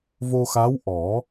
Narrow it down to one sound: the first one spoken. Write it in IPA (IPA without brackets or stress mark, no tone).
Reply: v